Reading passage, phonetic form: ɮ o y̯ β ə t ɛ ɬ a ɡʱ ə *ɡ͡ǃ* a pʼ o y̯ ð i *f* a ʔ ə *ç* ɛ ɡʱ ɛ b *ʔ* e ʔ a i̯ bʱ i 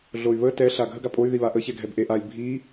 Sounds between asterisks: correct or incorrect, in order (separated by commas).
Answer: incorrect, incorrect, correct, correct